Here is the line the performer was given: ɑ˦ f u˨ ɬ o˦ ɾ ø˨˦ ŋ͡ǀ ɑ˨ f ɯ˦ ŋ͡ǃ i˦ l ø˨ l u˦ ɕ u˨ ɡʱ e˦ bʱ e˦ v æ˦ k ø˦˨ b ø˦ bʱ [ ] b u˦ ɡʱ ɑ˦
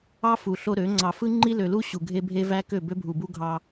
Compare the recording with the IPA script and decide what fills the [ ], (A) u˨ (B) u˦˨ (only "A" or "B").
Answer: A